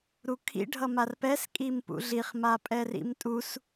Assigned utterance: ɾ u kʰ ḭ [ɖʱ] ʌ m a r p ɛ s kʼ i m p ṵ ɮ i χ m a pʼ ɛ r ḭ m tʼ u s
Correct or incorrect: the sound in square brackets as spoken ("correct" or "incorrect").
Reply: correct